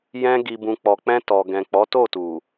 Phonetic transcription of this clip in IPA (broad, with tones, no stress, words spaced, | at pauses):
jɛ̃˧ ɡi˨bũ˨ k͡pɔ˨k͡pɛ̃˧tɔ˨ɡɛ̃˨ k͡pɔ˨˦to˦˨tu˨